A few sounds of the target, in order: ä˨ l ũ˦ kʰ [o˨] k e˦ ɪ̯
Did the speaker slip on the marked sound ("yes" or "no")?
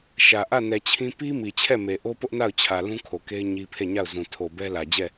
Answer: no